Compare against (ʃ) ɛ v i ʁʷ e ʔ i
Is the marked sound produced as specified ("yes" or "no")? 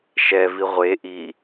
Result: yes